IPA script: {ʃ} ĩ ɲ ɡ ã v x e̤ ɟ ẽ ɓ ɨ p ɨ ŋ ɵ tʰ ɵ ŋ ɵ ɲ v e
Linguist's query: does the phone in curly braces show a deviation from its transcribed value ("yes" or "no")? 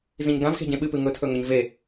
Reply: yes